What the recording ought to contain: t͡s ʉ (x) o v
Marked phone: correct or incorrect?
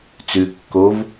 incorrect